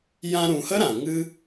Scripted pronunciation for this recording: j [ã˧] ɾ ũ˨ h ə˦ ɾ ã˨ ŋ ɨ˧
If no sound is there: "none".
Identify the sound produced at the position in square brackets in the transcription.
ã˧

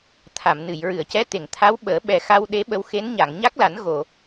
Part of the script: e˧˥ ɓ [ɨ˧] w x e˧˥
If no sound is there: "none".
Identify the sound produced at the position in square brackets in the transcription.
ə˧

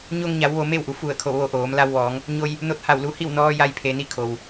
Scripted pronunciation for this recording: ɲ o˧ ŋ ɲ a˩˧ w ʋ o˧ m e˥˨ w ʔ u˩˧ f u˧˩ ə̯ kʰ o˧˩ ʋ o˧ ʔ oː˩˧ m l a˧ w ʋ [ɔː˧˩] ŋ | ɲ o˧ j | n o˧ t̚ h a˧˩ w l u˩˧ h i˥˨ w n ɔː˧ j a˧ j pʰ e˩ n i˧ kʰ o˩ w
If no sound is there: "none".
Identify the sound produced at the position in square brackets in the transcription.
ɔː˩˧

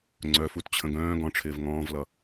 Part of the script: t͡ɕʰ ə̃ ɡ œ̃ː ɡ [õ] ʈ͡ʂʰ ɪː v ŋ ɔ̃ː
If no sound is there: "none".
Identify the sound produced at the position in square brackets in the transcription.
ɔ̃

